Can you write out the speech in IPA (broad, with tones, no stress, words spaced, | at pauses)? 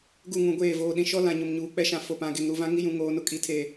ɡu˦˨ŋũ˨ ɡʷeː˦˨ voː˨ɗĩ˨ ʃɔ˦lã˨ ɲʊ˨mɲuː˨k͡pɛ˦ʃã˨ fo˨pã˨ɡe˨ŋ ɾu˨ vã˦ŋi˦jũ˨ ŋoː˨nʊ˨kʼi˨tʰe˨